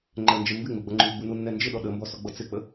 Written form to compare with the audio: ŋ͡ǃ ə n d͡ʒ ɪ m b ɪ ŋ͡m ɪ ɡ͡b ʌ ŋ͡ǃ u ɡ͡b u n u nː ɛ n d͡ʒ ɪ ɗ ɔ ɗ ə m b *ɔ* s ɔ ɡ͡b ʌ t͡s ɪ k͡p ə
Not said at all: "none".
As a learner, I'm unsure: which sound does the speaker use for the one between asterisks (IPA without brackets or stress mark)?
ɔ